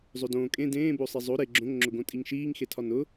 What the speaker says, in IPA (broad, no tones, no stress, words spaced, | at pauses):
zˤodõː kʼẽ dẽː bosˤezˤo ɾe ɡ͡ǁõŋ ŋ͡ǁʊɡõtʼiŋʃiːŋ xetʰɒnʊ